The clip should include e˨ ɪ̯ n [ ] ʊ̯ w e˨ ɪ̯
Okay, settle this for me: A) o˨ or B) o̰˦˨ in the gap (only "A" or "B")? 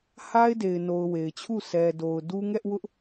A